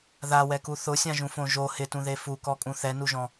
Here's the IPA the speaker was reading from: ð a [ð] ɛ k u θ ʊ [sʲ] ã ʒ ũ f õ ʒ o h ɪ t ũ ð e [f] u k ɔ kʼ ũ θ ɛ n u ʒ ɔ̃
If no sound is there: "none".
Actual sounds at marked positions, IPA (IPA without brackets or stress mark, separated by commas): w, sʲ, f